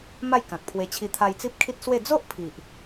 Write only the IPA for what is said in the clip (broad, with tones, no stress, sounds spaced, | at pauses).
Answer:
m a˥˧ j k ã˨ k̚ pʰ w e˧ t͡ɕʰ i˧ t̪ʰ a˧ j t͡s i˦ p̚ kʰ i˦ t̚ s w e˥˧ d͡z o˦ ʔ pʰ i˨ ʔ